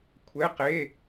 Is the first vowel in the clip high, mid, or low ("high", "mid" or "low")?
mid